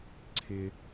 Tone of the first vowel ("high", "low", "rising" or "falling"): high